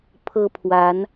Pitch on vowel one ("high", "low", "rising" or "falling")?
high